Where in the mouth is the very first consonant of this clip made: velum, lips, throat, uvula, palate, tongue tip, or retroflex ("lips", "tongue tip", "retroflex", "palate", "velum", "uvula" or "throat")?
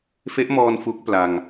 lips